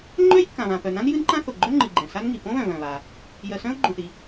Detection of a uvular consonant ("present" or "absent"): absent